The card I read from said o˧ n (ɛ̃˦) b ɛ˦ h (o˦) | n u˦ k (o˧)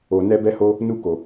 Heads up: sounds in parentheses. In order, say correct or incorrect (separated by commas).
incorrect, correct, correct